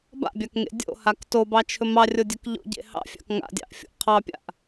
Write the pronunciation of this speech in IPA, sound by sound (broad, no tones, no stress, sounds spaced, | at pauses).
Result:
b a̰ bʲ a k ŋ ḛ dʲ o̰ h a k t o b ɑ t͡ʃʰ ɵ m ɑ rʲ o dʲ ɵ k ʎ o̰ ɟ ḛ h ɑ̰ fʲ ɑ̰ k ŋ a̰ dʲ ɑ̰ ʔ fʲ o̰ ʔ qʰ ɑ pʲ a̰ ʔ